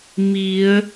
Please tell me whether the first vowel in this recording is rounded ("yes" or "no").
no